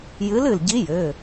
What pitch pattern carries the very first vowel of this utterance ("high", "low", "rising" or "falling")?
rising